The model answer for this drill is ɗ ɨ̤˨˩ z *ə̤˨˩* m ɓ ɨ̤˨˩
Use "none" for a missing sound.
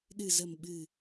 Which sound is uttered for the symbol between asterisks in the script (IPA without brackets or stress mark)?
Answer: ə̤˨˩